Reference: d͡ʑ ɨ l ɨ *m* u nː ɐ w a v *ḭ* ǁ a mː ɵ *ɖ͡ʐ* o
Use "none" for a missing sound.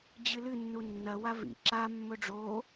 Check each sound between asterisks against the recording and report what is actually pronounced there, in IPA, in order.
nː, ḭ, ɖ͡ʐ

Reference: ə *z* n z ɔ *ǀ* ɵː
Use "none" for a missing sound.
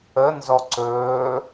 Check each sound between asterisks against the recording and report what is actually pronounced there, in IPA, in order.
none, ǀ

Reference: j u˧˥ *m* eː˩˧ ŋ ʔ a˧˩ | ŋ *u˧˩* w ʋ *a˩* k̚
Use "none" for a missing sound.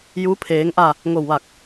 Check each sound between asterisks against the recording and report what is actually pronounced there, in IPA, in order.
pʰ, o˧˩, a˧˩

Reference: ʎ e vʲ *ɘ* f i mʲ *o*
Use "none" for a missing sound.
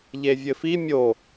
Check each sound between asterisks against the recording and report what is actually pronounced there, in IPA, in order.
ɘ, o

